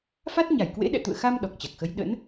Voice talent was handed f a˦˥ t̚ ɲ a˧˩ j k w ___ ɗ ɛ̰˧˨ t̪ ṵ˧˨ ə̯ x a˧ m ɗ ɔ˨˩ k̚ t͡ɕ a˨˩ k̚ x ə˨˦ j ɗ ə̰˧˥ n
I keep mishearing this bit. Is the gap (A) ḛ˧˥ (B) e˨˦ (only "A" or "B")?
A